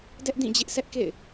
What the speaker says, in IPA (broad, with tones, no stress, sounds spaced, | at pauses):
d ɛ˦ ʔ d ĩ˦˨ d͡ʑ ɪ˦ ʔ s ɛ˦ ʔ k ḛ˦˨ ɪ̯